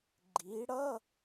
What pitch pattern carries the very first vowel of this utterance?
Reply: rising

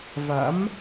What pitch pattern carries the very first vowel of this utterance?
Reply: rising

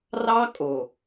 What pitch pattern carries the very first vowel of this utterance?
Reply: high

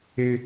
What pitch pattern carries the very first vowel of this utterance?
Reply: high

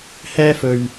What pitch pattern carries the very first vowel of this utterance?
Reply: high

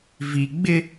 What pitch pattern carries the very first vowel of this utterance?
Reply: low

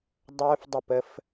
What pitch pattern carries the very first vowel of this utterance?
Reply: high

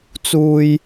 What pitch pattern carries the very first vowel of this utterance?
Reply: low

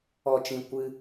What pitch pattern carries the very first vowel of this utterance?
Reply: low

